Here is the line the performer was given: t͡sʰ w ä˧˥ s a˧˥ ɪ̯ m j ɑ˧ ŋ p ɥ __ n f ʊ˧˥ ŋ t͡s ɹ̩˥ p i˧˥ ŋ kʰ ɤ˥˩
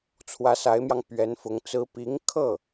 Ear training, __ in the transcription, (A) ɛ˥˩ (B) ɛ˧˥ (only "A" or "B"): B